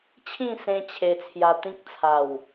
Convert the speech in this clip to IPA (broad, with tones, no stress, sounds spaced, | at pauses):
t͡ɕʰ ĩ˥˧ s ẽ˧ t͡ɕʰ e˧ t͡sʰ j a˧ t̪ ĩ˦ k̚ t͡sʰ a˨˩ w